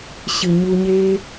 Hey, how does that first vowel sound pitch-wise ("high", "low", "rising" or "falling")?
low